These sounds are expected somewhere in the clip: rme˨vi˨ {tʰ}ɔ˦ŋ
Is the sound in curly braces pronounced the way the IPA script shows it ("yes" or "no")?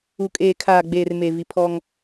no